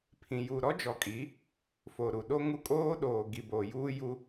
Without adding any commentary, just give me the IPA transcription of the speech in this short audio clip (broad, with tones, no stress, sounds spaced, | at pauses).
pʰ ĩ˨ j u˨ ɾ ɔ˦ d͡ʒ ɔ˨ kʼ i˨˦ | f o˨ ɾ u˨ ɗ o˦ ŋ u˦ kʼ oː˦ ɗ oː˨ ɡ i˨ b o˨ j uː˦ j u˦